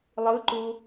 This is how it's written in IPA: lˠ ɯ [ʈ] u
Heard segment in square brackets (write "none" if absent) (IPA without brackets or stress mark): ǃ